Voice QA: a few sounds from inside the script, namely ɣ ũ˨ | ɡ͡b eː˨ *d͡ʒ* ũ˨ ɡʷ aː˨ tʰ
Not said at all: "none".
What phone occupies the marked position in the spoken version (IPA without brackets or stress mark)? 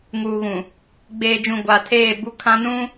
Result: d͡ʒ